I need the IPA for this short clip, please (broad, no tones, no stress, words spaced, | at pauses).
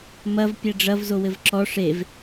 mɐv pʲɛɖ͡ʐɐv zowɘvǁɔ ʂev